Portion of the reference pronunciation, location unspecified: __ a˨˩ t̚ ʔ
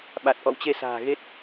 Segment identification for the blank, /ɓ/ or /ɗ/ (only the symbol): ɓ